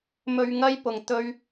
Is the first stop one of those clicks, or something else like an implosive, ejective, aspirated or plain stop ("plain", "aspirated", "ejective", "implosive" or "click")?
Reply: plain